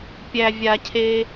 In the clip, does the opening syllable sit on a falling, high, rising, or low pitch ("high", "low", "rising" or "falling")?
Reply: low